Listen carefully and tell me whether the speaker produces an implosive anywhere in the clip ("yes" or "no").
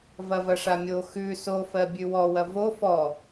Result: no